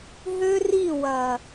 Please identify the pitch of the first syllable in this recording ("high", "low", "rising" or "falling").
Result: high